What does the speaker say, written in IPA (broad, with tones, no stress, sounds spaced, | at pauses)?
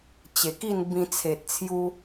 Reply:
t͡ɕ e˨˩ k i˥˧ n b ĩ˧ t͡sʰ e˨ t̚ t͡sʰ j u˧